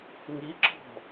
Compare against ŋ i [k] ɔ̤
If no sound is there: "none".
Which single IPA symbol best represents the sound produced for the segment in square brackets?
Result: ǁ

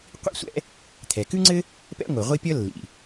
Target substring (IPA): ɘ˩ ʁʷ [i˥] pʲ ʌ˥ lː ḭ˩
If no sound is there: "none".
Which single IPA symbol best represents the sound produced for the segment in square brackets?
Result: i˥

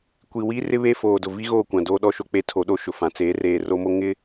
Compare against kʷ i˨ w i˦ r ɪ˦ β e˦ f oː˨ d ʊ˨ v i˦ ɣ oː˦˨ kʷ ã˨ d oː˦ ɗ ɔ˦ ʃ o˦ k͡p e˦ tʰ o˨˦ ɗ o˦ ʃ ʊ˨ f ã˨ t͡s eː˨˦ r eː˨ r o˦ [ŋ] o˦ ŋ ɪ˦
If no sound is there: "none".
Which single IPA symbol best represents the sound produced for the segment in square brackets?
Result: m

